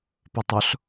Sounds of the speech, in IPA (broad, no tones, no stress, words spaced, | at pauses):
pɵtˤʊɬ